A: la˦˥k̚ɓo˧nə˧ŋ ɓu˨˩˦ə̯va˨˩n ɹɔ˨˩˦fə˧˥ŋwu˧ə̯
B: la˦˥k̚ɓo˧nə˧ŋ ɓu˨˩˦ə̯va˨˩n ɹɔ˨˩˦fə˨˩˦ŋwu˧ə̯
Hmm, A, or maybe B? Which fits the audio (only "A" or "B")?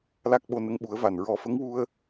A